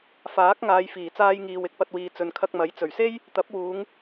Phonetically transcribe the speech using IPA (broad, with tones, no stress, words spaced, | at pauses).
faː˨˥k̚ ŋaː˨˧jfiː˨˩t͡saː˧j ŋiː˨w ɪ˧k̚pɐ˧t̚wiː˨ t͡sɵ˨nkʰɐ˧k̚mɐ˨˥j t͡sɵ˨˩ɥ se˥j | t̪ɐ˨˥p̚wuː˨˧ŋ